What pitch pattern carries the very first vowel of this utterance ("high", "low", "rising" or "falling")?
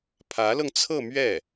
rising